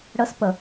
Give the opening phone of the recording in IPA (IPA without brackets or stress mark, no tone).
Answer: ɽ